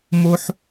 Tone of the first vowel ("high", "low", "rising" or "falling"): high